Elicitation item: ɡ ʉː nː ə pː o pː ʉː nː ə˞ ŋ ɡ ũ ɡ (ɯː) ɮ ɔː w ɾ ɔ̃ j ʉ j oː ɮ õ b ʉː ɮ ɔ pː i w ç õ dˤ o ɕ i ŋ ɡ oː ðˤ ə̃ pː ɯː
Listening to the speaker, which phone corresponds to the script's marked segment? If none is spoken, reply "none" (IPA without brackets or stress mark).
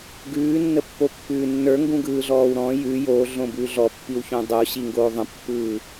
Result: ɯː